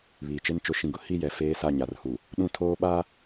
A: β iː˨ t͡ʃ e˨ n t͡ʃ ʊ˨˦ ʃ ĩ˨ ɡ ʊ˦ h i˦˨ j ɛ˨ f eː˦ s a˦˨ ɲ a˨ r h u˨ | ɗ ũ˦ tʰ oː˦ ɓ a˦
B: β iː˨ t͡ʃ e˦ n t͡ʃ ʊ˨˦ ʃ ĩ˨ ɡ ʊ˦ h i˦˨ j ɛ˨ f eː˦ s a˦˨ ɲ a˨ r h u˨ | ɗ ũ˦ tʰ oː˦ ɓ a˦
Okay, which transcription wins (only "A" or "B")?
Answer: B